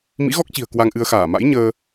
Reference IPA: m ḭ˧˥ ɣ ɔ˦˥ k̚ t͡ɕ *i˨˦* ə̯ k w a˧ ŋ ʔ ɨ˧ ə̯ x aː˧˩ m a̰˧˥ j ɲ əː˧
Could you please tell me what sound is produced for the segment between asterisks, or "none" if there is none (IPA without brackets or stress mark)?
i̤˨˩